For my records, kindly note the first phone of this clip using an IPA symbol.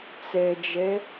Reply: t͡s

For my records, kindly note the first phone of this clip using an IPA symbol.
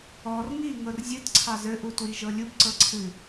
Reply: ɔ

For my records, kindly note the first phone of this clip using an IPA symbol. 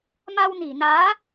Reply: m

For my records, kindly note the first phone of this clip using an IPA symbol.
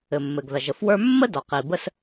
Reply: ɘ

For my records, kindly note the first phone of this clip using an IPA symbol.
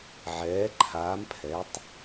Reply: ʕ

